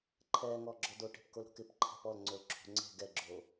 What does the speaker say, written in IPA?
ǃʰ ɛː ŋ ɔː ɡ͡ǁ ɔ d o ʈ e̤ p k o l ɾ o̤ k ɪ p ǃʰ ɛ̤ p ɔ l ŋ͡ǀ o l ǁʰ o̤ ŋ͡ǀ e̤ ɡ ɛ ɡ͡ǁ oː

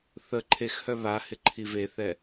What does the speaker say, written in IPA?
θ ə ǃʰ e x h œ β a h ɪ ǃʰ i v e θ ɛ

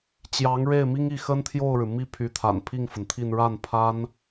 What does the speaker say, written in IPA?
t͡ɕ j ɑ˧˥ ŋ ɻ e˥˩ ɪ̯ m i˥ ŋ i˥˩ x ə˥ n t̪ʰ j o˥˩ ʊ̯ ɻ ɻ̩˩ m i˥˩ pʰ y˧˥ t̪ʰ a̰˨˩ n pʰ i˥˩ ŋ f ə˩ n t̪ʰ i˥˧ n ɻ a˥˩ n pʰ a˥ n

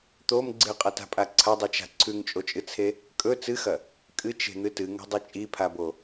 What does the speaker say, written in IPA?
t̪ o m ɡ͡ǀ ɨ qʼ ɐ t a̤ pʼ a ǀʰ ɐ dˤ i t͡ʃ a̤ ǀʰ ʉ ŋ t͡ʃʼ o t͡ʃʼ ɨ t͡sʰ e | kʼ ɵ t͡s ɨ x ɐ | kʼ ɨ t͡ʃ e̤ n̪ ɨ t ɨ ŋ o̤ dˤ i t͡ʃʼ i pʰ a b o

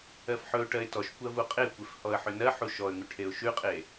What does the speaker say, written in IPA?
ɜ f ħ ɵ ʊ̯ ʈ ɜ ɪ̯ t ɔ ʃ kʷ ɜ v u qʼ e kʷ e f h ɔ ə̯ ħ ʏ n ɜ ħ u ʃ ɔ ə̯ ŋ ʉ ʈʰ e ʊ̯ ʃ ʉ qʼ e

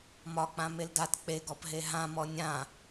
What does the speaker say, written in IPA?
m ɒ k͡p ã m e l d a t k͡p e ɡ ɔ p ɦ e ɦ ã m ɔ nʲ ã

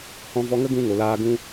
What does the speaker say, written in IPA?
h ɔ̃˧ v ɔ˧ ŋ ə˦ ɡ ũ˧ ŋ o˨ l aː˧ ɡ ũ˦

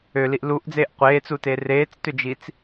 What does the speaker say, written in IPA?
ø l i ʔ l u ʔ d͡z eː ʔ qʷ eː t͡s u t e r eː t͡s t ʏ d͡ʒ i t͡s

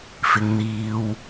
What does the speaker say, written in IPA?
f ɪ˨ ŋ n̪ iː˨ w

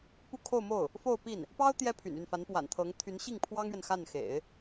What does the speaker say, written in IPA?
p u˥˧ kʰ o˥˧ ʊ̯ m o˥˩ ʊ̯ | f o˥˧ ʊ̯ p i˥˩ n | p ɑ˥ ʊ̯ t̪ j ɛ˥ pʰ y̰˨˩ n y˥˩ n f a˧˥ n p w a̰˨˩ n t̪ʰ ɤ˧˥ ŋ t̪ʰ y˧˥ n ɕ i˥˩ ŋ pʰ w ɑ˥ ŋ ɥ ɛ˨ n x a˥˩ n x ḛ˨˩˦ ɪ̯

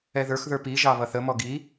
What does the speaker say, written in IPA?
ɛ ð ə˞ x ð ə˞ p i ʒ ɑ β ʌ θ ə m ɔ ɡ i

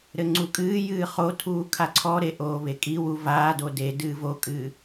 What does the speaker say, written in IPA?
ɾ ɘ ŋ͡ǀ u kʼ ɨː j ɨː χ o tʰ uː kʰ a ǀʰ ɔ ɾ e ʔ oː β e kʼ i w u v aː d o d e d ɨː v o kʼ ɨː

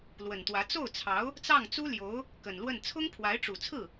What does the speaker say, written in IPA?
l w ə˨˩ n t̪ w ä˧˥ t͡s o˥˩ ʊ̯ t͡sʰ ɑ˧˥ ʊ̯ | t͡s ɑ˥˩ ŋ t͡s u˥ l j o˧˥ ʊ̯ | k ə˨˩ n l w ə˥˩ n t͡sʰ ʊ˥ ŋ pʰ w a˧˥ ɪ̯ ʈ͡ʂ u˨˩ t͡sʰ ɹ̩˥˩

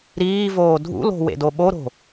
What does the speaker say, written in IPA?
ɾ iː v oː dʱ ṵ l o̤ w ḛ d o ɓ o ɾ o̤

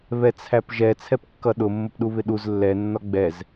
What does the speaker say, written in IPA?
β ɛ t͡sʰ æ p ʒ ɛ t͡sʰ ɛ p kː ʌ ɗ ʊ mː ʊ p ɗ u β ɪ ɗ u z lː ɛ nː ɒ ɡ͡b ɛ z

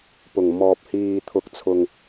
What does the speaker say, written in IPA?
p ʊ˨˩ ŋ m ɔː˨ p̚ h iː˨ t̪ʰ ʊ˨ k̚ t͡sʰ ʊ˨ ŋ

